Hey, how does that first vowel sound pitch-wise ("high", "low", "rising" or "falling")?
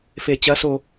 low